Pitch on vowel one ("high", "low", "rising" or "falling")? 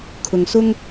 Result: low